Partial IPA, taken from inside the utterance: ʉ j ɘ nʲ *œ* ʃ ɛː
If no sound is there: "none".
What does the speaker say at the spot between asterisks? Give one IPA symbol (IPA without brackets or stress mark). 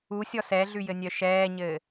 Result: œ